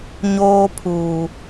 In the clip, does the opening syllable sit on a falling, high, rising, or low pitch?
high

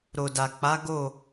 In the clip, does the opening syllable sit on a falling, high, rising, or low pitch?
low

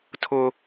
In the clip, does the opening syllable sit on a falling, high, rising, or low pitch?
high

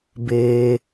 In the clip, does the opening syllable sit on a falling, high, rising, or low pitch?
low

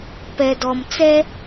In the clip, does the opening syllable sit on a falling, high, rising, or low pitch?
low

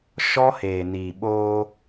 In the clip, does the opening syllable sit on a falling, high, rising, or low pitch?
high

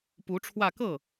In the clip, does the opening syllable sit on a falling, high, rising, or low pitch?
rising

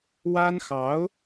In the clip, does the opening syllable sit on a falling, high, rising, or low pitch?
high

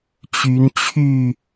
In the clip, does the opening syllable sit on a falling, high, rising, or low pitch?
rising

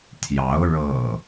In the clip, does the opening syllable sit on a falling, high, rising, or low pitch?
rising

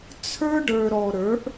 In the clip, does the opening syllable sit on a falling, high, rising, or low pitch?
high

